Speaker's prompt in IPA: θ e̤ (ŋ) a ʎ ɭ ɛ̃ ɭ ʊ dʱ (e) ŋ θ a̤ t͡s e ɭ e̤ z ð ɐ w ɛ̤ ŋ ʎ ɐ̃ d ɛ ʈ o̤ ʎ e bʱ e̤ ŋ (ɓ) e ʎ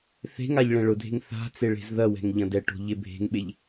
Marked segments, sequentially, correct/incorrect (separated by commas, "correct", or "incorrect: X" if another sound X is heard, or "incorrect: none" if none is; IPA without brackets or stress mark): correct, incorrect: e̤, correct